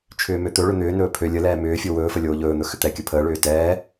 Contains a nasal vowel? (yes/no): no